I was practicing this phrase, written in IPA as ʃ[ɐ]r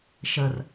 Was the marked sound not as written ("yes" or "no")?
yes